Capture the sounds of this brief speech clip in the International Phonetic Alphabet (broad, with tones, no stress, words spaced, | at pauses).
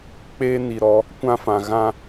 k͡peː˦ni˨ɾɔ˨˦ | kʷã˦fã˨ ɣã˦